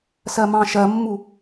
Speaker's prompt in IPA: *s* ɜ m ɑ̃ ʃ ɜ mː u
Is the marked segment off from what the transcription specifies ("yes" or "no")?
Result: no